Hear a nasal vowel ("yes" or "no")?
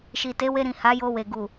yes